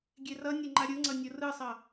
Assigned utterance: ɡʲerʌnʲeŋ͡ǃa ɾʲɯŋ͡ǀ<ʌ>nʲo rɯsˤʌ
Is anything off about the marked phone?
no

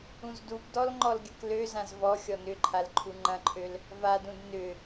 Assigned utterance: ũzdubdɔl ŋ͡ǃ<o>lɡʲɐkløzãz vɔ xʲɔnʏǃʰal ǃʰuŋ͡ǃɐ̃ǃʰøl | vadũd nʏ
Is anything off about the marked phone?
yes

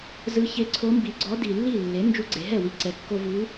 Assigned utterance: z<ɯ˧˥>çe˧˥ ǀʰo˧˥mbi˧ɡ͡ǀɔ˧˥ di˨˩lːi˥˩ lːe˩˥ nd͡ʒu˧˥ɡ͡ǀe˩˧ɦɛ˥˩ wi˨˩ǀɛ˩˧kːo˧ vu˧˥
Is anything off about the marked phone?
no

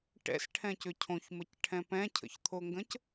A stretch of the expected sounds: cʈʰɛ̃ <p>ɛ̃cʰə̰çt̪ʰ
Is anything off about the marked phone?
no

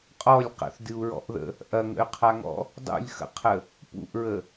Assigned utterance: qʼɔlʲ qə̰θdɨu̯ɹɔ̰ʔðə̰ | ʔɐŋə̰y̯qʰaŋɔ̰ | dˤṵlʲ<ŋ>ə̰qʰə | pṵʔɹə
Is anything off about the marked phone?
yes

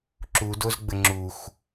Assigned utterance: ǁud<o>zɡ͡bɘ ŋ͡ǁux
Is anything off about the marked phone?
no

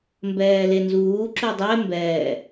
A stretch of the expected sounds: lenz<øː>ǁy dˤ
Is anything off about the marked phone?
yes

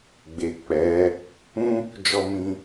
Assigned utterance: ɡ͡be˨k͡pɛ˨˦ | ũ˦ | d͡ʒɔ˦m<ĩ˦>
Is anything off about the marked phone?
no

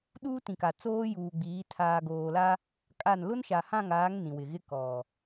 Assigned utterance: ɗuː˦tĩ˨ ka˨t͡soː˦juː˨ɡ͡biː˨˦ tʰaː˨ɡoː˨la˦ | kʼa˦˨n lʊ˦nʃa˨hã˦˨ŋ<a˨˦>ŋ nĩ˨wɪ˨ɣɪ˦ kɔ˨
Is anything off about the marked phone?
yes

